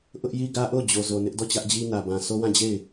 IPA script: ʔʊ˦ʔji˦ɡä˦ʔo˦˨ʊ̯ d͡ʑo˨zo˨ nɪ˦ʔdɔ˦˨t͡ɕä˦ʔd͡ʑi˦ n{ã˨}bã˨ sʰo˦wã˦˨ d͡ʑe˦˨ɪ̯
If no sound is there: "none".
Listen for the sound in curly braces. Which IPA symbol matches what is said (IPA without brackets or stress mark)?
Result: ä˨